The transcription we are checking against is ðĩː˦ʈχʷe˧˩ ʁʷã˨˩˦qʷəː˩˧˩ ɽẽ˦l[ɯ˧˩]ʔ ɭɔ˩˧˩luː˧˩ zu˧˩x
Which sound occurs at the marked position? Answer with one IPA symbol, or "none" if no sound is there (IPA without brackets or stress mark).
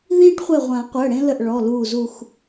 ə˧˩